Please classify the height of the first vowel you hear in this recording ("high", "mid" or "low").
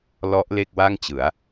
mid